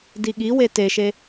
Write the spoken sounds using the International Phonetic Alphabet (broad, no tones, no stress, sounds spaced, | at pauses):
d i ɠ i w e t e ʃ e